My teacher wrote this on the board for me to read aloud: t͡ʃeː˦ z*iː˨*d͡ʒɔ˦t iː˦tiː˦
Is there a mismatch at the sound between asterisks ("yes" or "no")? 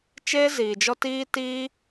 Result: no